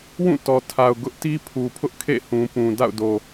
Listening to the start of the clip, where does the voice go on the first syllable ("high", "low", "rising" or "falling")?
falling